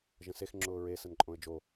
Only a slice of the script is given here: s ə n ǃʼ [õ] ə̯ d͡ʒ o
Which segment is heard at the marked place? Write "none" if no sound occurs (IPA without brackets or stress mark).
õ